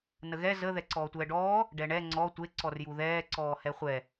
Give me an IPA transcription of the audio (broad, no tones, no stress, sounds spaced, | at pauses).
n ə ɣ ɛ z ə ð ɛ ǀ ɔː tʷ ɛː ɖ ɔː | ɖ ɛ ɳ ɛ ŋ͡ǀ ɔ tʷ e ǀ ɔ r j u ð ɛː ǀ ɔː h ɛ χʷ ɛ